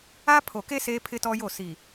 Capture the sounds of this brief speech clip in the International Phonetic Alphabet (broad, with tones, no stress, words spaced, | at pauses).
a˦ pʰo˨ke˦ seː˦pʰɪ˦tɔ˦jo˦˨ si˨